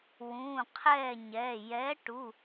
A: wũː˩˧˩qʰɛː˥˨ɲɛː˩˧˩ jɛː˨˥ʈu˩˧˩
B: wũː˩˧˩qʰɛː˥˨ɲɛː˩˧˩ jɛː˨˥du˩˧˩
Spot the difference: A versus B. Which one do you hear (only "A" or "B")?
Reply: A